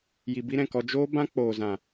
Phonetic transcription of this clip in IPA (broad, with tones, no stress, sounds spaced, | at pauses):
j i˨ b i˧ ɾ ɛ̃˨ k ɔ˧ d͡ʒ oː˦ b ã˦ k͡p oː˨ z ã˨